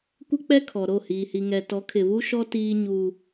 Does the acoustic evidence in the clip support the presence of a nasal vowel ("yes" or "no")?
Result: no